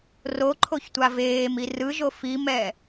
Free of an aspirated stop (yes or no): no